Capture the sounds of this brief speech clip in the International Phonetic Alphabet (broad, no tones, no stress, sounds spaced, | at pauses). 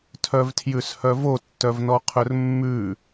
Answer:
tʰ œ v tʰ j ʉ s h œ v o tː œ v n ɔ qʰ ɵ r mː ʉ